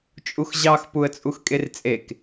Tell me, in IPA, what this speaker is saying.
t͡ʃʼ u x ʑ ɑ x p u ə̯ t͡sʼ u x kʼ e r t͡sʼ e k

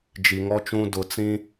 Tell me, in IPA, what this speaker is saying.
d͡ʒ i˨ ŋ ɔ˦ t͡ʃ ũ˦ d ʊ˨ t͡s ĩ˦

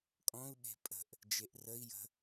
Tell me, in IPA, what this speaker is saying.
kʼ ɔ̃ u̯ ɓ e̤ pʼ ə̤ ʔ | d͡ʒ e ʔ r ə i̯ j ə̤

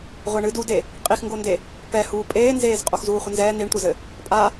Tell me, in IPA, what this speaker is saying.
ʁʷ ɛ ɳ ɨ d u d e | qʼ i x ŋ ɡ o n d e | p ɛ h uː pʼ eː n z eː z qʼ o x z uː χʷ ɘ n z ɛː n̪ i ɳ tʷ ɐ z ɘ | pʼ a

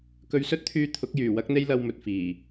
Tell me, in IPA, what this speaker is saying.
k ɵ˧ ɥ s ɵ˥ t̚ t̪ʰ yː˧ t̪ʰ ʊ˨˥ k̚ j yː˨˩ w ɐ˥ k̚ n̪ e˥ j l ɐ˧ w m ɵ˨ t̚ f iː˨˩

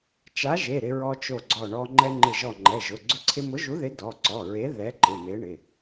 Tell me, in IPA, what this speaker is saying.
t͡ʃ a˨˥ ʒ e˩˧˩ ɾ ɪ˧ ɹ ɔ˧ t͡ʃ o˧˩ ɡ͡ǀ ɔ˧˩ ɳ ɔ˧ ŋ͡ǃ ɛ˧ ŋ͡ǃ ɪ˧˩ ʒ ɔ˧˩ ŋ͡ǃ ɛ˩˧˩ ʒ ʊ˩˧˩ ɡ͡ǀ ʊ˧ ǀʰ ɪ˧ m ʊ˨˥ ʒ u˨˥ ð ɪ˨˥ d ɔ˩˧˩ ǀ ɔ˩˧˩ ɹ e˨˥ ð ɛ˨˥ ǃ ɪ˩˧˩ m e˨˥ ɳ ɪ˩˧˩

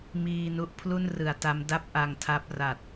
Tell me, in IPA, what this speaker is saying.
m iː˧ n u˦˥ ʔ pʰ l u˥˩ n r ɯ˩˦ a̯ t a˦˥ m d a˥˩ p̚ ʔ a˧ ŋ tʰ a˦˥ p̚ r a˨˩ t̚

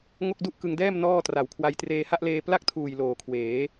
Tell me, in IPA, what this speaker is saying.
ŋ o˥˩ k̚ d u˥˩ ʔ k ɯ˧ ŋ d ɛː˥˩ m n ɔː˥˩ t r a˨˩ w kʰ w a˧ j t r eː˧ h a˥˩ ʔ l eː˧ p l a˥˩ k̚ tʰ uː˨˩ j l oː˨˩ kʰ w eː˩˦

